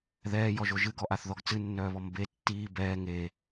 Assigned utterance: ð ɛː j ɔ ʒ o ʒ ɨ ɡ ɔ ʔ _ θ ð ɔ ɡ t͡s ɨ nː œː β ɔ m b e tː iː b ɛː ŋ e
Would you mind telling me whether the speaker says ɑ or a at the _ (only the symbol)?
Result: a